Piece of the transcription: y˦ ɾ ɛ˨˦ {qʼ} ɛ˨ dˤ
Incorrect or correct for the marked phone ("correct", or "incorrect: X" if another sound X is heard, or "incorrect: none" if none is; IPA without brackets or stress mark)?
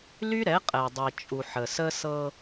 correct